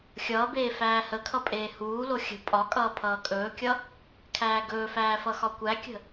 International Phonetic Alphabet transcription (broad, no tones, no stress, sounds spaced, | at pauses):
xʲ ʌː b eː f æː h ə kʰ ʌ pʼ eː h uː l o xʲ ə̤ pʼ ɒ kʼ ʌː pʰ ʌː kʼ ɵː kʲ ʌ | kʰ æː ɡ ɵː f æː f ʌ x ɒ kʷ æ kʲ ə̤